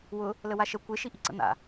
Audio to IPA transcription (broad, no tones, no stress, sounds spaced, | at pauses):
w ʊ | l ə w a ʃ ə kʷ e ʃ i ʔ i ǀ ə̰ n̪ a̰